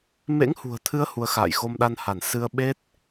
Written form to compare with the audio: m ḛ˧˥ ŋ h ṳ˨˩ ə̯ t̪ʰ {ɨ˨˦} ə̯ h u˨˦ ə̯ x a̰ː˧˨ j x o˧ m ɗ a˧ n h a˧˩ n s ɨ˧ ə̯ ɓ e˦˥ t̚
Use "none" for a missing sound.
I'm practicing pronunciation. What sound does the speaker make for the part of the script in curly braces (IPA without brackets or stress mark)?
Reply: ɨ˨˦